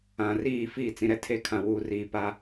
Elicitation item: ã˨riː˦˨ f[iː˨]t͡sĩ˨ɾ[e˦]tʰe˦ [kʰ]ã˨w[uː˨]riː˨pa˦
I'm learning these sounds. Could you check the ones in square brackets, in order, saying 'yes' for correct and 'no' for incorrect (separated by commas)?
no, no, yes, yes